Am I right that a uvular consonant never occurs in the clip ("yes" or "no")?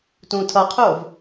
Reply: no